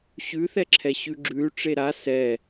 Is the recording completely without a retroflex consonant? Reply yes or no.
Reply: no